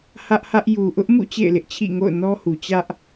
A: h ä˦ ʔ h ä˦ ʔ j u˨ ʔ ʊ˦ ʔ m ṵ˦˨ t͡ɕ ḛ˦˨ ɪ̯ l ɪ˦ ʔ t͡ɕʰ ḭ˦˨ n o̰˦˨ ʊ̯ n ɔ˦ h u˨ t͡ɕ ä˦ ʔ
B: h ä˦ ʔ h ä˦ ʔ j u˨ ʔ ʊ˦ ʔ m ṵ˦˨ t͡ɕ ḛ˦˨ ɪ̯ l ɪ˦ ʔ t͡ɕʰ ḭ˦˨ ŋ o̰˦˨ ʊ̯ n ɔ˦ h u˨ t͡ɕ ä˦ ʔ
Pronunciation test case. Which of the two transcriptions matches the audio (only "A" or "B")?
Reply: B